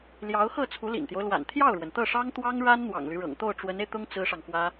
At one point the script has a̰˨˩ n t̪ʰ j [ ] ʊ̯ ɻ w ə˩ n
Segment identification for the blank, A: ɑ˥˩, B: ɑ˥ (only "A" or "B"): A